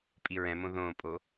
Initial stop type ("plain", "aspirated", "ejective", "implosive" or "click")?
ejective